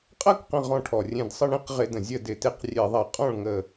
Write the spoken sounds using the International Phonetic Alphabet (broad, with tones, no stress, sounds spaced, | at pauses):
qʼ ɐ˥˧ k q ə̃˧˩ ʁ ɔ̃˧˩ ʈʰ ɔ˩ rʲ ẽ˧˩ d sˤ ə˥˩ ɳ ĩ˥˧ q ʁ ɪ˧˩˧ d ə̃˩ zʲ ə˥˩ d ɪ˧˩ t e˥˩ q rʲ e˧˩˧ ðˤ ɐ˧˩˧ qʼ ɔ̃˥˩ ɭ ŋ ə˧˩